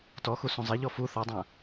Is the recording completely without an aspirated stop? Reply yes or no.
yes